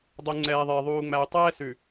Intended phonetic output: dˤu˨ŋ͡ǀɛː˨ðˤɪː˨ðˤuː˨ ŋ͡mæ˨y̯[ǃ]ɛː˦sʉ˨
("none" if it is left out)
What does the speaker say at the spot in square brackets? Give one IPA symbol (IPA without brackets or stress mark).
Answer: tˤ